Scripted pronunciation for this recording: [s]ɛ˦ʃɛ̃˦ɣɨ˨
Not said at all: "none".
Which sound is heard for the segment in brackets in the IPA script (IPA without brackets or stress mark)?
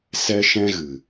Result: s